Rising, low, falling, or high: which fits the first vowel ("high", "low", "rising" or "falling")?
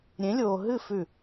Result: rising